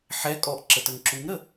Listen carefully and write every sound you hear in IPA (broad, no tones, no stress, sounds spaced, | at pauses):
ħ ɛ kʼ ɔ ʔ ǁ ə t ə ŋ ǁ u ŋ ɾ ə